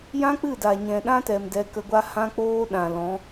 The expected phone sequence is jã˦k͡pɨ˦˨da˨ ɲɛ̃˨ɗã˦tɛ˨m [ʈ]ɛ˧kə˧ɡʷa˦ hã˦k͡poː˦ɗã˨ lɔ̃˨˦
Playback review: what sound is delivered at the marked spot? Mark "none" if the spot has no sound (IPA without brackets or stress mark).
d